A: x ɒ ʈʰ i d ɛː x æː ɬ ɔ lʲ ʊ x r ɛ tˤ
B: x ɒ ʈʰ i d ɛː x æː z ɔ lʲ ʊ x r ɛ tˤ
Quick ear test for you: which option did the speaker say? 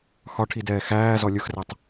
B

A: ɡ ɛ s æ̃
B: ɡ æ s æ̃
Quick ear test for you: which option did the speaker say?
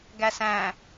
B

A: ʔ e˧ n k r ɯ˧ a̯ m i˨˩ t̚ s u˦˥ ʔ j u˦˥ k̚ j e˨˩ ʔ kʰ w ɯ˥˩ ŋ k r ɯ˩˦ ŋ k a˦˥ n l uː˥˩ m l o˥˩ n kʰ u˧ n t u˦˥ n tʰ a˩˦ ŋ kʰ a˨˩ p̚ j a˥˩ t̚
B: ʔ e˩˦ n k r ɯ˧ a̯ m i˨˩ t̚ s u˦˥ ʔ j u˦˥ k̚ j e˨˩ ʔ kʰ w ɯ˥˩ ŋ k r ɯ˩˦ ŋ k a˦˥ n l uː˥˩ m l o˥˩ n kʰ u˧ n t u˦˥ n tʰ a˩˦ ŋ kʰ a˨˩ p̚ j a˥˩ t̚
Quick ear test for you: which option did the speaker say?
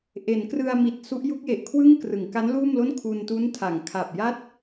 B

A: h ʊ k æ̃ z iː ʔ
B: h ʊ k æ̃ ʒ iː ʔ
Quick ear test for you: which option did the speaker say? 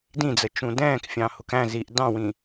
A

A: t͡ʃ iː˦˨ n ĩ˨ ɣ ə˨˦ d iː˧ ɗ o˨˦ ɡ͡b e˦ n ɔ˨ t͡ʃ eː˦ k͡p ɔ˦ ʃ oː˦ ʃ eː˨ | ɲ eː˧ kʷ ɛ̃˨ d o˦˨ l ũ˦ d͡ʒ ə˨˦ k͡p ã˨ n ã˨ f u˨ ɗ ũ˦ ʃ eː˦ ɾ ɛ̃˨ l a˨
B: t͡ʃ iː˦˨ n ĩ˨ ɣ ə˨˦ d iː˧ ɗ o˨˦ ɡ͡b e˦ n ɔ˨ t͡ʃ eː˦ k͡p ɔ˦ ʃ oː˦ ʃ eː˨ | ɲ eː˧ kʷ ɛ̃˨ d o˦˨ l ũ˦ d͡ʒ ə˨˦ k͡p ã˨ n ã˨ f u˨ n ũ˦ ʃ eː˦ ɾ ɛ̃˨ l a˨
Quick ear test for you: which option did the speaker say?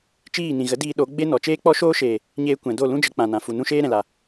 B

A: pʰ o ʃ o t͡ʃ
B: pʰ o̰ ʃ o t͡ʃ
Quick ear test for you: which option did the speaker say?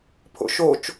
B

